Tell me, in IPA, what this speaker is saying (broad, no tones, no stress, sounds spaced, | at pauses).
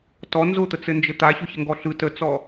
t ɔ n z ʊ t̪ ə t͡s ɘ n d͡ʒ ɘ t̪ a ç ʊ ç ə ŋ ɡ ɔ ɬ ɯ t ə t͡s ɔ